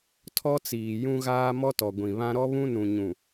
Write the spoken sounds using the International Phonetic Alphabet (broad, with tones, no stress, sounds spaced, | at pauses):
tʰ ɔ˦ t͡s iː˨ j ũ˦ ɣ aː˦ m ɔ˦ t ɔ˨ ɡʷ ĩ˨ β ã˦ ɾ ɔ˦ β ũ˦ n ũ˨ ɲ ũ˨